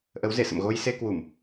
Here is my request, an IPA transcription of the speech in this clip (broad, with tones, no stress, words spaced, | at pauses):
ʔə˨˦wze˧˩sə̰˧˨m ɣo˧jse˧kwu˧˩˨m